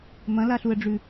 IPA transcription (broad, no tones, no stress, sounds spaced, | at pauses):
m ɐ̃ l a ɬ u ə̯ ɖ͡ʐ ʉ